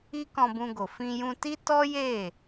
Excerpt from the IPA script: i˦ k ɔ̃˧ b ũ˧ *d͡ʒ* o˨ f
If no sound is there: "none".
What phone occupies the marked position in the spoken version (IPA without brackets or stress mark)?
ɡ